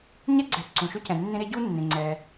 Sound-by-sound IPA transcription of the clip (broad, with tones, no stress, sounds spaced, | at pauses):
ɲ ɛ˥ ɡ͡ǀ ɛ˨ ǀ ũ˩ ʃ ø˦ c ɛ̃˩ nː ẽ˦ ɾ e˥ ɟ u˥ nː ẽ˩ ŋ͡ǀ ɛ˩